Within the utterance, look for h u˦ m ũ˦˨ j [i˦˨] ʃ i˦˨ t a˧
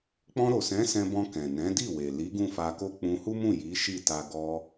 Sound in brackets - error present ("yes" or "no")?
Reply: yes